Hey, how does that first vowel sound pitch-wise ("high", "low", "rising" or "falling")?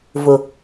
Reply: low